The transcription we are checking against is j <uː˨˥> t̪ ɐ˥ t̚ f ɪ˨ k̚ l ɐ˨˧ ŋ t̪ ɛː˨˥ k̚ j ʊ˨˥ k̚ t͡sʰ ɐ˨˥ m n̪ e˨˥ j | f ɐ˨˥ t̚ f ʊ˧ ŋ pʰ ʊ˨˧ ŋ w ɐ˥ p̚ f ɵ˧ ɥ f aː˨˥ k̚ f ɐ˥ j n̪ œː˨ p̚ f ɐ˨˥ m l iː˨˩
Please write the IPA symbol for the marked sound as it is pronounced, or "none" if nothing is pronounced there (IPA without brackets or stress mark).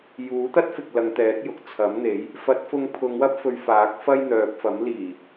uː˨˥